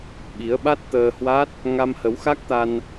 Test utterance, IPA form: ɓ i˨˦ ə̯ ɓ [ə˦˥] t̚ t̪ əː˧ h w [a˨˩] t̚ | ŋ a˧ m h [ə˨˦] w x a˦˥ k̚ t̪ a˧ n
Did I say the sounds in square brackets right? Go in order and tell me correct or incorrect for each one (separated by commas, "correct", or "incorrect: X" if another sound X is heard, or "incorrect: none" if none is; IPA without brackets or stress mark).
incorrect: a˦˥, incorrect: a˦˥, correct